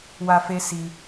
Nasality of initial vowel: oral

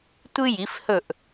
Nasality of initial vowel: oral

